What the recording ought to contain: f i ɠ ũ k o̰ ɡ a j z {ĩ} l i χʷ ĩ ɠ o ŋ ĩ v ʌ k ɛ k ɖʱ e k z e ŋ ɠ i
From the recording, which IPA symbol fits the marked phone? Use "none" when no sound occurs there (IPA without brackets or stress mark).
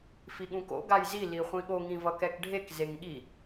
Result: i